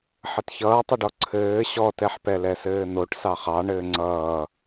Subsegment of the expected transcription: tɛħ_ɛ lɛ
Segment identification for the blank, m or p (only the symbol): p